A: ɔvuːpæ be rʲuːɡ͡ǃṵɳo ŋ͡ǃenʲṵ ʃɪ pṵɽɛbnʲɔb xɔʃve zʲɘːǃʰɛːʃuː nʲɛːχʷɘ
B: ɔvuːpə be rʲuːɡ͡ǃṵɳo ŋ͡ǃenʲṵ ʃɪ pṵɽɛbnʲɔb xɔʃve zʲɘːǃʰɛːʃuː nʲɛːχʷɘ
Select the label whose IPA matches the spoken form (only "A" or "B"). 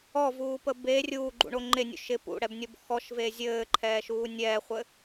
B